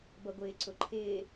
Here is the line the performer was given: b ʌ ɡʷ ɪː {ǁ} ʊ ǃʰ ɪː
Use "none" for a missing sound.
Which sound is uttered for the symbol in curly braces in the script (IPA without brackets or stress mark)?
ǀ